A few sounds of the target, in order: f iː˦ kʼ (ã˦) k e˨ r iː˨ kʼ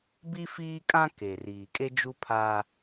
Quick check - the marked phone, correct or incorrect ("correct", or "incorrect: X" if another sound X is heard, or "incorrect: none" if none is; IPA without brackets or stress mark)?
correct